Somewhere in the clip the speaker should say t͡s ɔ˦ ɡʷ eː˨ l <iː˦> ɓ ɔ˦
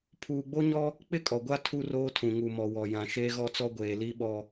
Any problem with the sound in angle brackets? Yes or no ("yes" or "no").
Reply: yes